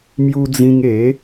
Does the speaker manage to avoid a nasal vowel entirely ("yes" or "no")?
no